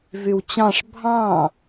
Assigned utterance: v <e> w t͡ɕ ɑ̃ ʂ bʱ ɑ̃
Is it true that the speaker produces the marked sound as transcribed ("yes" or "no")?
no